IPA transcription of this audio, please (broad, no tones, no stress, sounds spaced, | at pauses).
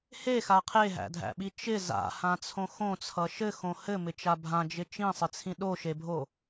h e x a qʰ e ɦ æ̰ dʱ æ̰ ɓ i t͡ʃ ɪ z a̰ h ã t͡sʰ õ x õ t͡sʰ ʌ ʃ ɘ x õ h ɘ m ɪ t͡ʃ a bʱ ã d͡ʒ ɪ t͡ʃ ĩ sˤ ɪ t͡sʰ ĩ ɗ o ʃ e bʱ o